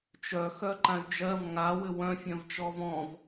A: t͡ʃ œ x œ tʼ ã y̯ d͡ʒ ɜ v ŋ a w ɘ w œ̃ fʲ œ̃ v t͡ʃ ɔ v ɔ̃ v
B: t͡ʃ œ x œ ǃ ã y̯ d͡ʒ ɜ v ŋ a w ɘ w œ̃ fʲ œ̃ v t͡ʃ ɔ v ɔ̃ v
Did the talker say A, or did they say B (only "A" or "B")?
B